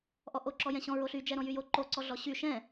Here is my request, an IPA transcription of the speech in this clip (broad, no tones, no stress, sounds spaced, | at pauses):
ʔ ɔ ʔ o ǁ ɔ j ɛ̃ ɕ ɔ̃ ɹ o ɬ y d͡ʒ ɛ ɾ ɔ̃ j y j o ǃ o ǀ ɔ ɮ ɔ ɕ y ʃ ɛ̃